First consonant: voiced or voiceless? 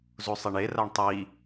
voiced